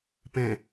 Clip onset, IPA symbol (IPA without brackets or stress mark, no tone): p